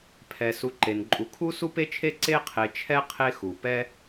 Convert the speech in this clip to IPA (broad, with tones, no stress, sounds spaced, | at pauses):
pʰ ɛ˩ s u˨ ǃ e˩ n ǃʼ u˨ kʰ u˥ s u˥ p e˥ t͡ʃʰ e˥ ǀ e˦ qʰ e˨ t͡ʃʰ ɛ˦ qʰ e˦ x u˩ p ɛ˥